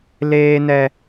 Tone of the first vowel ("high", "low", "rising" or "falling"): high